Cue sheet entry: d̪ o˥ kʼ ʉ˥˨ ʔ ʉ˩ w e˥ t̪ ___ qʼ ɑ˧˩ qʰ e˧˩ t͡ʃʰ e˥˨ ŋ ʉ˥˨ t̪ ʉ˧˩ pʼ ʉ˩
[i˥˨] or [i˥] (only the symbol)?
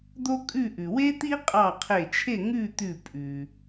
i˥